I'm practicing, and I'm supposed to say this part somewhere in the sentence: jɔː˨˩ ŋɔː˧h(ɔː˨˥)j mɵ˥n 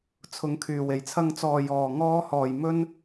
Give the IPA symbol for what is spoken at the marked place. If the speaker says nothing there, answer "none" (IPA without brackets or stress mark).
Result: ɔː˨˩